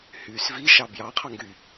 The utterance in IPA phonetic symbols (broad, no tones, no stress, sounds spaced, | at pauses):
h yː s v i ʃ ɑ b j ɑ qʰ ɑ ŋ ɡ y